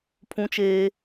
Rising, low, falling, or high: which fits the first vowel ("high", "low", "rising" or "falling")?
high